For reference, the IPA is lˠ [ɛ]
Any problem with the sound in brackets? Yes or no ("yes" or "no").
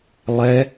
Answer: no